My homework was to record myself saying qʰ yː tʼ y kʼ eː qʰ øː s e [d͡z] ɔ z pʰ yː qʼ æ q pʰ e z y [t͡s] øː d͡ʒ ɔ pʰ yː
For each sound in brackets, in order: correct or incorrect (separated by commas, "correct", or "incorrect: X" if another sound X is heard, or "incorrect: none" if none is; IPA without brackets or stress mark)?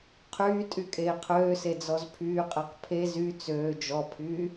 correct, correct